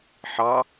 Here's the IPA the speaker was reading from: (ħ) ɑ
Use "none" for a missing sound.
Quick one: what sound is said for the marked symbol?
ħ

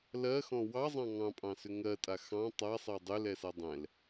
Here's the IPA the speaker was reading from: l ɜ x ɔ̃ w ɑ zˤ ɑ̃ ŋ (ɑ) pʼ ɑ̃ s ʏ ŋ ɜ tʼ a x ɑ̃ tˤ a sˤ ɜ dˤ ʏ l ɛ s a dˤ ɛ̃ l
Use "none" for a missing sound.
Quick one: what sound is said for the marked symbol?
ɑ̃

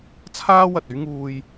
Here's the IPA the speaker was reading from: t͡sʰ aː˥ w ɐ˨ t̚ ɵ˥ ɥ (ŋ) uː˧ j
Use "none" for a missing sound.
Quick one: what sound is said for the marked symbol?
ŋ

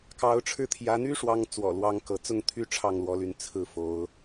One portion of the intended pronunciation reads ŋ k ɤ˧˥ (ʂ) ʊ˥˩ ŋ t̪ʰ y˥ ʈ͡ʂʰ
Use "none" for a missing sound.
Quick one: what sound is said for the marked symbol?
t͡s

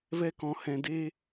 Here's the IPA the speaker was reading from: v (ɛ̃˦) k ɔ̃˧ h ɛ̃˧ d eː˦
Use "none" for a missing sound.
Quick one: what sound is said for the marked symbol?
ɛ˦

